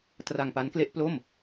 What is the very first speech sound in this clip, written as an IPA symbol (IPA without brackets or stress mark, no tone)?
t